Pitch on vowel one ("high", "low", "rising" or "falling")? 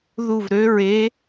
falling